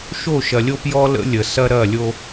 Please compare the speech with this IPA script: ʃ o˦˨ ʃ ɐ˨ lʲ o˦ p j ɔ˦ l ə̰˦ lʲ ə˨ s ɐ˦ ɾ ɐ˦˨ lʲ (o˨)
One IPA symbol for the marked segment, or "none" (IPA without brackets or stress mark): o˦